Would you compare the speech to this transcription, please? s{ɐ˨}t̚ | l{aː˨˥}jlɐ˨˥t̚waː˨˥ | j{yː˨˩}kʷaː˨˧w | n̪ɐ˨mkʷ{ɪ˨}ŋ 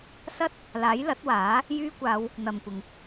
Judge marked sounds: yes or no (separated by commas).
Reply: no, yes, no, yes